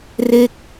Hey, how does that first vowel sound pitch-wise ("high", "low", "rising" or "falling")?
falling